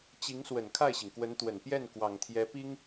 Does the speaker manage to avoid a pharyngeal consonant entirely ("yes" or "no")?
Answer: yes